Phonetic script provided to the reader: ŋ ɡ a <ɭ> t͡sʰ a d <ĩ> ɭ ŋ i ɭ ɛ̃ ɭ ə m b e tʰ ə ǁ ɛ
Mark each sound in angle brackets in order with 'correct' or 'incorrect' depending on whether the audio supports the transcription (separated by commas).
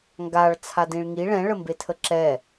correct, correct